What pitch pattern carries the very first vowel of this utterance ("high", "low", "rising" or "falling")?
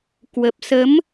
low